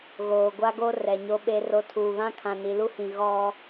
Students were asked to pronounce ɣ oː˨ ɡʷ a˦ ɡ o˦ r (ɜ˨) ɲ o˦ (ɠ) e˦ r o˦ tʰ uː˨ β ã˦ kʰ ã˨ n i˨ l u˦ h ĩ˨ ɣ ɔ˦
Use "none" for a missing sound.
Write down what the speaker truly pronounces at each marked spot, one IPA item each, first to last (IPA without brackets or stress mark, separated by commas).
ɛ˨, ɓ